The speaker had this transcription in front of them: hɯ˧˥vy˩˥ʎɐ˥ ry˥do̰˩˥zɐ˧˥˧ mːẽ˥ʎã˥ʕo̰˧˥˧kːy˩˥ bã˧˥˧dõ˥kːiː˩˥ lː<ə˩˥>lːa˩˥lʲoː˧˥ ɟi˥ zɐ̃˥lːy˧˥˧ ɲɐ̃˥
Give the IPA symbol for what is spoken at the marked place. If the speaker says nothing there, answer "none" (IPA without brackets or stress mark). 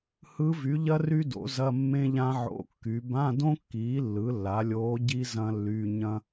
ɯ˩˥